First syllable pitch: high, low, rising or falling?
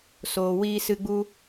low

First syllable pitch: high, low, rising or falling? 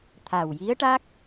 low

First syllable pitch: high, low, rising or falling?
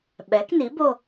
rising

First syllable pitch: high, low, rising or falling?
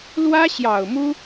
high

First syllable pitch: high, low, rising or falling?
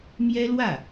high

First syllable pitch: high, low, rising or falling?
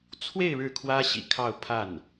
falling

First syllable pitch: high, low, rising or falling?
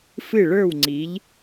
falling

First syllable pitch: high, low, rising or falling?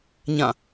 falling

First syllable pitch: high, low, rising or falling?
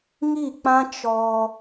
falling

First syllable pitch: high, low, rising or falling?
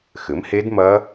rising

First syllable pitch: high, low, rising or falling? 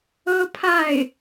high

